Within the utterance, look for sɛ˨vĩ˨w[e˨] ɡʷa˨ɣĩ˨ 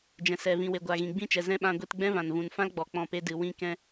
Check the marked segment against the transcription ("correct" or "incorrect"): correct